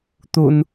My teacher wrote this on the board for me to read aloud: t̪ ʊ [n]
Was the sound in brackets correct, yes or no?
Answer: yes